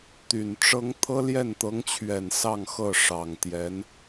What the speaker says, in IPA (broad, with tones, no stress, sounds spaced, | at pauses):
t̪ y˨˩ n ʈ͡ʂ ɤ˥ ŋ t̪ʰ ɤ˥ l j ɛ˥˩ n t̪ ɤ˧˥ ŋ t͡ɕʰ ɥ ɛ˨˩ n s ɑ˥˧ ŋ x ɤ˥˩ ʂ ɑ˨˩ ŋ t̪ j ɛ˧˥ n